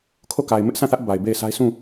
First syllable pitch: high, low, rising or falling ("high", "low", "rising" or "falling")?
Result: falling